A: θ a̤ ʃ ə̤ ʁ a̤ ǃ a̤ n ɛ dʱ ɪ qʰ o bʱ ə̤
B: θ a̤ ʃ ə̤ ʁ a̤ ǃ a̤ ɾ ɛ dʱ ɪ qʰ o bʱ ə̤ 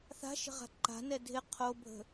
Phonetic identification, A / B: A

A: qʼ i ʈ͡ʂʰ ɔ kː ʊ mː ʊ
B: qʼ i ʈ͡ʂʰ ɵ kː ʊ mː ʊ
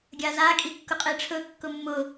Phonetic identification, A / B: B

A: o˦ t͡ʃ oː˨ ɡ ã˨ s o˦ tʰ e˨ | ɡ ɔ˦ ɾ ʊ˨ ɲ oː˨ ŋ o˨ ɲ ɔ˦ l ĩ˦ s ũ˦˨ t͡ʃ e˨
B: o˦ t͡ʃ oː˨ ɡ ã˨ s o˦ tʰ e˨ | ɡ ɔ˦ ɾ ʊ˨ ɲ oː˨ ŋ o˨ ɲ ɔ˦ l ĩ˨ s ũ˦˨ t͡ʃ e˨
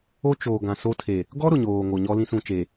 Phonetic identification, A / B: A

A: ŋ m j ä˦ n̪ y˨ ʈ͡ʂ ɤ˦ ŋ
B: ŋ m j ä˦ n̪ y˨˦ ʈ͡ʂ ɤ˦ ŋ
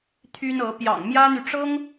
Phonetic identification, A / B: A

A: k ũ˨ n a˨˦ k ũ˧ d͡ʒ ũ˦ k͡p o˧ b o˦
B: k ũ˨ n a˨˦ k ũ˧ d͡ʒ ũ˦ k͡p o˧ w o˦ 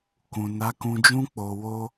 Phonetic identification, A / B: B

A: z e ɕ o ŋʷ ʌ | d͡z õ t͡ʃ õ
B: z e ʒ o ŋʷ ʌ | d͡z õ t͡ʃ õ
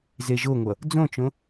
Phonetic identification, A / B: B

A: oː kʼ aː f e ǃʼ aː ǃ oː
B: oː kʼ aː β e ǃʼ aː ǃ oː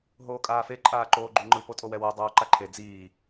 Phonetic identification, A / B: A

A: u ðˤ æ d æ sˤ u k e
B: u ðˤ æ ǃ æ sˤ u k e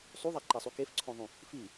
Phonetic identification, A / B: B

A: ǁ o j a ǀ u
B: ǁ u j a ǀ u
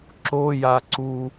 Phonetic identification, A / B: A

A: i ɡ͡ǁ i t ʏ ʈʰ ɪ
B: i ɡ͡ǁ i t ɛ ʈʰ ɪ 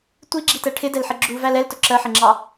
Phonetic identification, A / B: B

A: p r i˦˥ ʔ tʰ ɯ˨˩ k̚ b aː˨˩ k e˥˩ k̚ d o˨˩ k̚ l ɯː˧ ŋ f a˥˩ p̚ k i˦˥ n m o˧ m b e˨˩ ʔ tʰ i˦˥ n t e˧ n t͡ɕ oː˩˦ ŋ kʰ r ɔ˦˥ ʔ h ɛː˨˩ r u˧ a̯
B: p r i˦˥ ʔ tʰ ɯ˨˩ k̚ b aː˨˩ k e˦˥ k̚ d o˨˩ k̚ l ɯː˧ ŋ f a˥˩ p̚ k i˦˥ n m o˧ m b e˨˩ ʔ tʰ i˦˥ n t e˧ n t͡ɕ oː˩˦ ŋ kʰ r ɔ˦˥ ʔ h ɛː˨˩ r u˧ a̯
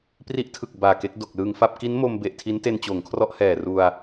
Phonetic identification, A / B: B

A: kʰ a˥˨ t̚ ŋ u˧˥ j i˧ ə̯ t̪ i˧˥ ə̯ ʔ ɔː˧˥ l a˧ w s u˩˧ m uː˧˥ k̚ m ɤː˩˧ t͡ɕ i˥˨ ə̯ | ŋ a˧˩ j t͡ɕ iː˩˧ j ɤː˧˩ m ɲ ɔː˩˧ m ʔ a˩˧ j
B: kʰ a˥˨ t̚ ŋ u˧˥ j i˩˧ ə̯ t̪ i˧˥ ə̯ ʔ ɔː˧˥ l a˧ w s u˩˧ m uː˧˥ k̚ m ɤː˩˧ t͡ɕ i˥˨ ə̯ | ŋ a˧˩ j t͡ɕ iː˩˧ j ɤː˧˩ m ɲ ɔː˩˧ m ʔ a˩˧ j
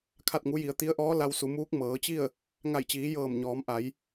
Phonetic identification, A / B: B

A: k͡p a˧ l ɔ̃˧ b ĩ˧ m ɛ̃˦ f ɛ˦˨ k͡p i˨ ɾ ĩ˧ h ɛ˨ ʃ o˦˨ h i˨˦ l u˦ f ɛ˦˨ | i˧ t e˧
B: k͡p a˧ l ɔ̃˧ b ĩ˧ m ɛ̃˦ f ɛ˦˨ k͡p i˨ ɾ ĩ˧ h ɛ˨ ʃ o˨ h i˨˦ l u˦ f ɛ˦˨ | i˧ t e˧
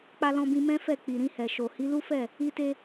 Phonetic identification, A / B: B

